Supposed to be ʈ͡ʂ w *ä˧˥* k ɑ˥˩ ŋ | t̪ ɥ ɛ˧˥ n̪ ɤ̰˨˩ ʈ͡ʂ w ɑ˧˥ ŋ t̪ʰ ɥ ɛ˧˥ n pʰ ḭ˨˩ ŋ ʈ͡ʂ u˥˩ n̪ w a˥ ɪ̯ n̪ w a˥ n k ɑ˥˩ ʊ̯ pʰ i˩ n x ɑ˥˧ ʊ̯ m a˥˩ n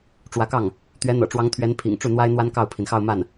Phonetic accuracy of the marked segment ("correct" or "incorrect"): correct